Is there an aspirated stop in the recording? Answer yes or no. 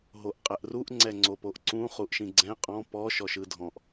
no